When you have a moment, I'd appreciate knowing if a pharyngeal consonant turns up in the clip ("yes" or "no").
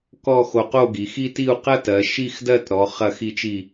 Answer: no